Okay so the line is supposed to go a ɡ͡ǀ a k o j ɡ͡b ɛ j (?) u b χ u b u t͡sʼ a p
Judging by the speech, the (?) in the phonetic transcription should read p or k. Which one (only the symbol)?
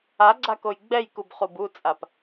k